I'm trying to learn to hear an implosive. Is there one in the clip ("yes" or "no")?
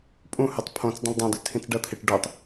no